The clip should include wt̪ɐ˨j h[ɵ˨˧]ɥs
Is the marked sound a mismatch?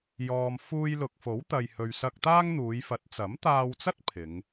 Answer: yes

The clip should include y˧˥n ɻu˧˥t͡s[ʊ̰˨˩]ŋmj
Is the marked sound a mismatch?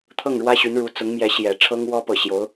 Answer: yes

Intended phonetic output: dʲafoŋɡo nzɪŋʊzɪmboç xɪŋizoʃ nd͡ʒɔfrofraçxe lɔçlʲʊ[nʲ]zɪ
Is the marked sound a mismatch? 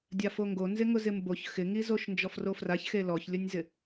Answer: no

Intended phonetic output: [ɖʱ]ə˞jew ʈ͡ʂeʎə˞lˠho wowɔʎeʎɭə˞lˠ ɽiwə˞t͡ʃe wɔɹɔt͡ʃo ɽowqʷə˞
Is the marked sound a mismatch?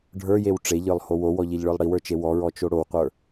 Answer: no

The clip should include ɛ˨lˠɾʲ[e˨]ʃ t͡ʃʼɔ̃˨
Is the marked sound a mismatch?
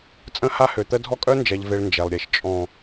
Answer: no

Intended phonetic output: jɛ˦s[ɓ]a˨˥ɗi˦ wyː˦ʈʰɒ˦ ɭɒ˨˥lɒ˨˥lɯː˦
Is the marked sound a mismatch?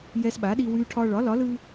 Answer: no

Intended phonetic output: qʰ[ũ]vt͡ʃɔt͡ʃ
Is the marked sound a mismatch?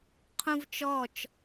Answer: no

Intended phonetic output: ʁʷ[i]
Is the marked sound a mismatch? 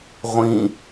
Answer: yes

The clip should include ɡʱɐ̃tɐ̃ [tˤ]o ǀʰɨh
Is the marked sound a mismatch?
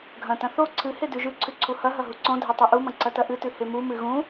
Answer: yes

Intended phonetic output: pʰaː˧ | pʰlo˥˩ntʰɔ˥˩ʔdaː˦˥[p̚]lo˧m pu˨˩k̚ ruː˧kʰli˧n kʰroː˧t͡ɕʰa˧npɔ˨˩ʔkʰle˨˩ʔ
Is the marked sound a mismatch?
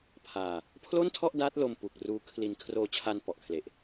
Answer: yes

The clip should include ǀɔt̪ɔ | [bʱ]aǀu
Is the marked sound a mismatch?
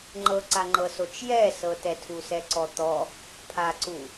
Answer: yes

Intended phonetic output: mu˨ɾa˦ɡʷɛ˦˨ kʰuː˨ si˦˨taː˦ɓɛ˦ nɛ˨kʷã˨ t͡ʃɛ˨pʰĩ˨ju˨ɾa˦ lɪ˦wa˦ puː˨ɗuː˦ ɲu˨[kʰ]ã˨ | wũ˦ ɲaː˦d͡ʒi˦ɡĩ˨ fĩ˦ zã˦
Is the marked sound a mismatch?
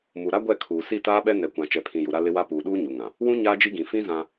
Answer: yes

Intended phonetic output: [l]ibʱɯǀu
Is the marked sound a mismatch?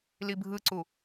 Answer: no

